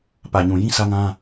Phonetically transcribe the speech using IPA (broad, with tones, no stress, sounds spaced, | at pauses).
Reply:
p ä˨ ɲ ũ˨ j ĩ˦ sʰ ä˦ ŋ ã˦